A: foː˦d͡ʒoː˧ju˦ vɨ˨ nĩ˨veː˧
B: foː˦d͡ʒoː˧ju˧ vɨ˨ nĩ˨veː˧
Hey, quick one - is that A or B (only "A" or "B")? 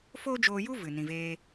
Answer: A